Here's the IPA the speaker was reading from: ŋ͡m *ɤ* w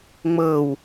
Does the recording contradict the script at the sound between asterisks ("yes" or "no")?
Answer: no